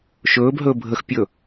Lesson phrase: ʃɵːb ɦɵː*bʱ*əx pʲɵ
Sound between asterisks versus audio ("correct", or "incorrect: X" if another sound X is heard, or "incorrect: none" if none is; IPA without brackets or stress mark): correct